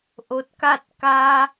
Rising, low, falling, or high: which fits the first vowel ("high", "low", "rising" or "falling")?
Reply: rising